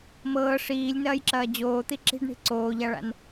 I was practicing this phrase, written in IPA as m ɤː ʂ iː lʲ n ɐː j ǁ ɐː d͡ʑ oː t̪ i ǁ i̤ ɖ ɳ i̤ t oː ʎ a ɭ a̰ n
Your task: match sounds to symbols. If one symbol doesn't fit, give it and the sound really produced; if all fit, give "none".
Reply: t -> ǀ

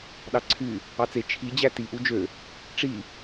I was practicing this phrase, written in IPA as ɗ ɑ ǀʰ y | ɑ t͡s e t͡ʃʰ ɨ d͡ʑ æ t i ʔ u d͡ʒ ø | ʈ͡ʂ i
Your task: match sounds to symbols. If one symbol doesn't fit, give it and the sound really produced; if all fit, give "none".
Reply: ɨ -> i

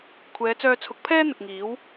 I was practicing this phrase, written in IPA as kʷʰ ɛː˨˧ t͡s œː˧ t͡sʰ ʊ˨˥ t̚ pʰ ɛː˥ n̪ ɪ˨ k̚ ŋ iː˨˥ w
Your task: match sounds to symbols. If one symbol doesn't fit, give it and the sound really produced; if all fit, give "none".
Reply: t̚ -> k̚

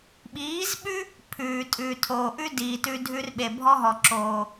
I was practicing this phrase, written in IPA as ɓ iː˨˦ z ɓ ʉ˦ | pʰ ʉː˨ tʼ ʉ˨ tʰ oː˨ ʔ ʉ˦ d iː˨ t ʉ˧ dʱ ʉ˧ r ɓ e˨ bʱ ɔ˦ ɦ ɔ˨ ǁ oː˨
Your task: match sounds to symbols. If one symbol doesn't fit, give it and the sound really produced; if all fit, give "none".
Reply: none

